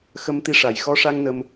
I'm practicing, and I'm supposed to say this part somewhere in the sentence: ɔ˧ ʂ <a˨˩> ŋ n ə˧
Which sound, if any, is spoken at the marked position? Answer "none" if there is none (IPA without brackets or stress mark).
a˧